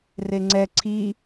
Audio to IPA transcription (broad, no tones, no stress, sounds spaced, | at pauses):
r e ŋ͡ǀ ɛ ǀʰ i